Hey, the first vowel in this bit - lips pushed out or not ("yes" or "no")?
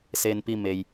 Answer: no